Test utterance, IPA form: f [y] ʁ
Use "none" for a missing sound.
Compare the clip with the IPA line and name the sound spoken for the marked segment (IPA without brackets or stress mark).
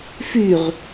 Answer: y